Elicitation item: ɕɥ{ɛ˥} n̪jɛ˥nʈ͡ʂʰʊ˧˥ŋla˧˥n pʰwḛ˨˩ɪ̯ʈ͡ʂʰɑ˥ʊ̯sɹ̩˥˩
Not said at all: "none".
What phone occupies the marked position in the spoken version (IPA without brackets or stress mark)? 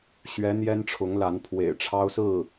ɛ˧˥